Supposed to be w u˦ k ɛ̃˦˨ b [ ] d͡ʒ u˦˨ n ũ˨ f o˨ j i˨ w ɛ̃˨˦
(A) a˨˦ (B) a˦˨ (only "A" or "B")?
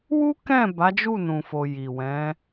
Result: A